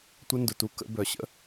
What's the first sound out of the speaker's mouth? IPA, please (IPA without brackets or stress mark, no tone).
tʷ